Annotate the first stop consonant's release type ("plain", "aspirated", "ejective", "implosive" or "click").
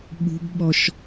implosive